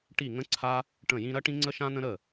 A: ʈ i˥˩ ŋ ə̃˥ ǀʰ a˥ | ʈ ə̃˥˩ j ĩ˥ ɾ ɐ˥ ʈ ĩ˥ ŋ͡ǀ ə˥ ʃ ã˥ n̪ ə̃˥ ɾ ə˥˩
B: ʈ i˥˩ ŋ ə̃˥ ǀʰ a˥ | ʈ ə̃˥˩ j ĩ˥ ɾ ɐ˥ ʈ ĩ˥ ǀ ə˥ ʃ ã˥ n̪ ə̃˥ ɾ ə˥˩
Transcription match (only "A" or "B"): A